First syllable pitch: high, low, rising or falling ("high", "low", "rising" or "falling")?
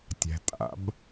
low